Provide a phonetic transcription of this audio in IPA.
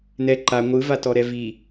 nɛ ǃa ŋʷɯvatɔɾɛ vi

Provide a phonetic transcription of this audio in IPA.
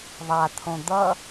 ðˤat̪ʰõ d̪ʌ

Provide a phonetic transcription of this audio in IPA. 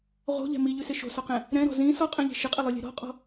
ʁo̤ʎɛ̤ miʎʉsɪ ʃo̤sɔqɛ̃ | ɾɛ̃ɾɔ̤ zĩ sɔqʼɛ̃ʎi̤ ʃɪqʼɪlˠʉlʲɛ̤ ɾɔ̤qʼɔ̤

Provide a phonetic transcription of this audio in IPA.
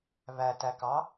βætækɑ

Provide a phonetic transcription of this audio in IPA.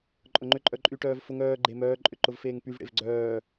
ǃʼʊŋ͡ǃʏǃʼœǃʼy ʈœːvfʊŋ œːɡ͡ǃe mœːǃʼʏǃʊv feːŋpyvɽḛv ɡ͡ǀœː

